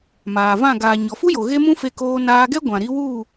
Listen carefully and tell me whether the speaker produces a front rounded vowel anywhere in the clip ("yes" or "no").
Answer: no